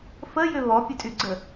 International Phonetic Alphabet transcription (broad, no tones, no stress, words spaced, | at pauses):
fəjʏ βɔpʲœtʼyɡ͡ǀə